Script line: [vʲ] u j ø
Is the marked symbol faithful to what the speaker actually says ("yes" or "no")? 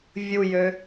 yes